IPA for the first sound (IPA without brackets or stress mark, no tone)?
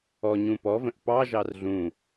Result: ɔ